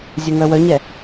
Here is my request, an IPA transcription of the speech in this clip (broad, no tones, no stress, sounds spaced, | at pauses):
zʲ ɘ ŋ œ w œ ɲ ɛ